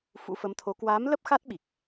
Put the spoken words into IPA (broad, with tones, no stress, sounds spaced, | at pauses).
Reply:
f ṵ˧˥ f ə˨˦ m t̪ʰ o˨˦ k w aː˨˦ m l ə˦˥ p̚ x a˦˥ t̚ ɓ i˨˩ k̚